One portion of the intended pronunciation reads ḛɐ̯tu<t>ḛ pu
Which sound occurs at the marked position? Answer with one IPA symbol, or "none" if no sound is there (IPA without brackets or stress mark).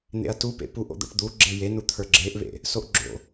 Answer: p